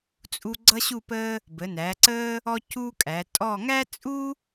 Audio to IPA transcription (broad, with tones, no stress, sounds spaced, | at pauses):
t͡sʼ u˦ ɡ͡ǀ ʌ˦ ɕ u˦˨ p əː˦ | b ə˩˧ n æː˩˧ ǀ əː˦ | ɔ˦ c uː˦ kʼ æ˩˧ tʼ ɔ˦˨ ŋ æ˦ t͡sʼ u˦